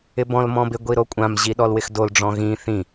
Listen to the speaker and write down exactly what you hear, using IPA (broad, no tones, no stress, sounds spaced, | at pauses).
ɪ b ɔ̃ l m ɔ̃ b ɪ ɡʷ i ɾ o kʷʼ ã m ʑ i ɗ ɔ l w ɪ x d o l ɖ͡ʐ ɔ̃ ɣ ĩ θ ĩ